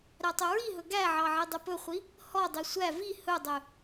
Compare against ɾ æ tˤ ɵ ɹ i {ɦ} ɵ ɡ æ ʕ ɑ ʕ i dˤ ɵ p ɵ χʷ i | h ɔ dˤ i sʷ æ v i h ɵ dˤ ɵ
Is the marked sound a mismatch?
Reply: no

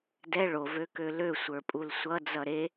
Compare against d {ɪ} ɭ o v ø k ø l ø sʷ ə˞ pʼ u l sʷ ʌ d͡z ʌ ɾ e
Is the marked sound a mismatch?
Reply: yes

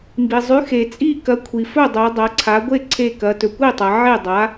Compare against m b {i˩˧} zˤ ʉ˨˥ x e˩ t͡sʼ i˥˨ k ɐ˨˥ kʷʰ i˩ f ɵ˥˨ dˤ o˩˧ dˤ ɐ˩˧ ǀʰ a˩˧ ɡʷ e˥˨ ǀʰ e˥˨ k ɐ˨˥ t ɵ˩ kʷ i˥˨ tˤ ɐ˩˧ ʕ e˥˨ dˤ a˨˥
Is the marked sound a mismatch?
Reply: yes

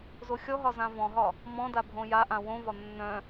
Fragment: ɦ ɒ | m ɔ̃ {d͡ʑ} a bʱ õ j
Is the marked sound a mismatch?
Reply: yes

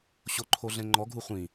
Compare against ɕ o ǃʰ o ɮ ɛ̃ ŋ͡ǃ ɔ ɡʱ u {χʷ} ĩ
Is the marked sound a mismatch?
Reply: no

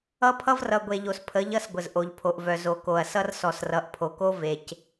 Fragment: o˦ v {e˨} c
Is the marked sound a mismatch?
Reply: no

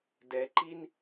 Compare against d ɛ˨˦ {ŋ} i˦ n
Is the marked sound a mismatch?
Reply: yes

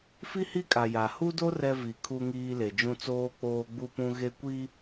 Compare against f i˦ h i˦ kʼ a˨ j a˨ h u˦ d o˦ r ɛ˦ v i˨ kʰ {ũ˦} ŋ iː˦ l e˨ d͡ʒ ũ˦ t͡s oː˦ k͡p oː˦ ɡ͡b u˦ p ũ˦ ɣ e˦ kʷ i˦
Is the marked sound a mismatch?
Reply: yes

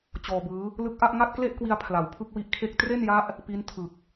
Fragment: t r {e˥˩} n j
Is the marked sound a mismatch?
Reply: no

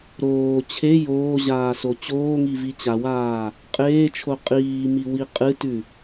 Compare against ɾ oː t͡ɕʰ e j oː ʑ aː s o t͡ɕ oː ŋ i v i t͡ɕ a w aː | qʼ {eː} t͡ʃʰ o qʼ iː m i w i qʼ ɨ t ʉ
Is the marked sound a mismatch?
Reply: no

